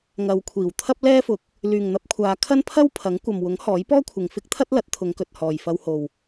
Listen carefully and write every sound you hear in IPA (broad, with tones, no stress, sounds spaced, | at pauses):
ŋ ɐ˨˧ w kʷʰ iː˨˩ w t̪ʰ ɐ˥ p̚ l ɛː˥ f ʊ˨˥ k̚ | l yː˨ ŋ n̪ ɐ˧ p̚ kʷʰ aː˨˧ kʰ ɐ˥ n pʰ ɐ˥ w pʰ ɐ˨˥ ŋ kʷ ɐ˨ m w ʊ˨˥ ŋ h ɔː˨˥ j p ɔː˥ kʷʰ ɪ˨ ŋ f ɪ˥ k̚ t̪ʰ ɐ˥ t̚ l ɐ˨˥ t̚ t̪ʰ ʊ˨˧ ŋ k ɵ˨ t̚ h ɔː˨ j f ɐ˧ w h o˨ w